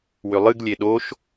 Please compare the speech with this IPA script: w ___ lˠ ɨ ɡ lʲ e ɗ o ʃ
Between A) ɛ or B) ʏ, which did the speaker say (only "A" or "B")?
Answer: B